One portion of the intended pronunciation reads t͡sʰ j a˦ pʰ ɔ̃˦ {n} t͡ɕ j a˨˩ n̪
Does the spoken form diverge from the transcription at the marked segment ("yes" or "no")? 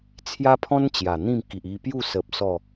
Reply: no